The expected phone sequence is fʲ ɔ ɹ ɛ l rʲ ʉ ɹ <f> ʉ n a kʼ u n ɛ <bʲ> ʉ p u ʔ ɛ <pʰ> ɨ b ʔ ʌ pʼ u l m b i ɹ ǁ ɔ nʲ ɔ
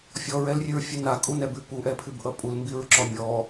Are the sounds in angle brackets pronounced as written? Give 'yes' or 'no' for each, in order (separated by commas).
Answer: no, no, yes